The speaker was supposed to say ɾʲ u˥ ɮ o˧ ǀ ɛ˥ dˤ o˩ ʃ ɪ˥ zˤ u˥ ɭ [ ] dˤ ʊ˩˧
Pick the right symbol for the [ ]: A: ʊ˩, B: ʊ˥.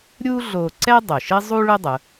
B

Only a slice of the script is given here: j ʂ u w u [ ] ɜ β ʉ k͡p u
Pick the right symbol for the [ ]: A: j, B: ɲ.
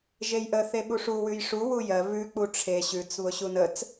A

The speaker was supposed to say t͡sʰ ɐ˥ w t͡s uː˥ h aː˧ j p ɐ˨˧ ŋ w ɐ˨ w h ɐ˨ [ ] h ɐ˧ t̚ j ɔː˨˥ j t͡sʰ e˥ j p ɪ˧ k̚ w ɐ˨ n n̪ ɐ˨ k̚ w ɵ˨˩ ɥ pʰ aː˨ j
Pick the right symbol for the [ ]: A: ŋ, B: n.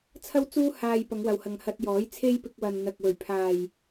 A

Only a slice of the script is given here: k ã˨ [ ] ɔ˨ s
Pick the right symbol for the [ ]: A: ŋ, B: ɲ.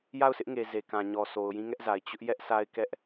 B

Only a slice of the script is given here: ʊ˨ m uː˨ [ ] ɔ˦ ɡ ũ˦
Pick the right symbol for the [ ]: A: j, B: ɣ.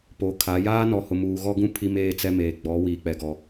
B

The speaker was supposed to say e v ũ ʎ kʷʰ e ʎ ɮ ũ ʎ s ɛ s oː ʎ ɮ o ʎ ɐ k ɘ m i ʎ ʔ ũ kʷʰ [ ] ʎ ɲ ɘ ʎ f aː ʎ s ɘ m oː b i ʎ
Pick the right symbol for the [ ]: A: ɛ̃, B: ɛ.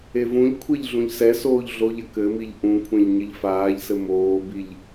A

